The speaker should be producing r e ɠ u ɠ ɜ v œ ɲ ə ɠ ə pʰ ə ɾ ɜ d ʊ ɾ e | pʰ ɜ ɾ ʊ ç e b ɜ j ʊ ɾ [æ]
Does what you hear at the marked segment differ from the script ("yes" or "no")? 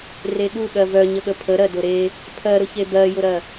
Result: yes